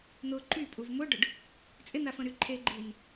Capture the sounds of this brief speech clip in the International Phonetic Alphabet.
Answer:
n̪ʊ ǃypʼuv mʊɖʊɖ | t͡sʼɪn̪afə̃ɾy ǃʰeɡ͡ǃin

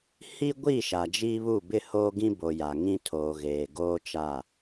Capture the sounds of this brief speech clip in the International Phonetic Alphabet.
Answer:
hi˦ɡʷi˦˨ ʃa˨d͡ʒiː˦βu˦˨ bɪ˦˨ hoː˦ɡĩ˦ bo˨ja˨ ŋĩ˦tʰoː˨ ɣeː˨ɡoː˦t͡ʃa˦˨

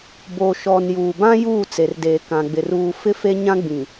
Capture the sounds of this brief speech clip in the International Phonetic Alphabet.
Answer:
bo˨ʃɔ˨n juː˨bã˦ juː˦˨t͡se˨rdeː˨ kã˨ɡ͡bɪ˨r uː˨ fɪ˦fe˦ ɲã˦ɡ͡bĩ˨

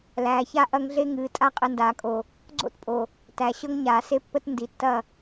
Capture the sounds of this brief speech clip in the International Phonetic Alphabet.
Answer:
læː˨ça˦ ʔɐ˦ŋ ɮe˦ŋɨː˨ tʼa˦qʼɨ˨ndaː˨kʼo˨ | ɡ͡ǀo̰˦tpʼo˨ | tæ˨ɕɤ˦ŋɲaː˨ se˦pːə˦t ndi˨tːɐ˦˨

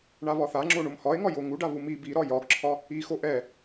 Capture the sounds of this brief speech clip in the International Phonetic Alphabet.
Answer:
ɳaβɒθaŋ͡ǁo ɳomhɒe̯ŋɒjo ŋuɖa βumi biɾɒ jɒɡǁʰɒ | ixo ʔɛ

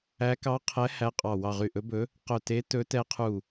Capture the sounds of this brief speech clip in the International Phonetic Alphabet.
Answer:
æ˧˥ kɑ˧˥qʰɛ˧˥ hæ˧˥qʼɑ˧˩ wɑ˧˩ʁy˧˩ʔɵ˧˥bɵ˧˥ | qœ˧˩te˧˥tɵ˧˥ tɛ˧˥qʰu˧˩

